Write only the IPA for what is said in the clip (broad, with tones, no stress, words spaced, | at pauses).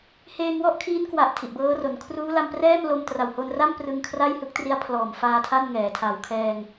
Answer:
heː˧ŋwɔ˥˩ʔkʰiː˦˥nkwa˨˩ʔ tʰi˨˩ʔbɤː˦˥ro˩˦n kʰruː˦˥la˧mprɛː˥˩m lo˧mtra˨˩who˧nra˥˩m prɯ˧ŋkʰra˥˩jhɯ˦˥k̚ tri˦˥a̯pʰlɔː˨˩m faː˧ tʰa˥˩n ŋɛː˩˦tʰa˨˩wkʰɛː˧ŋ